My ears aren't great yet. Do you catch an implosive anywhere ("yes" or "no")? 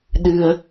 yes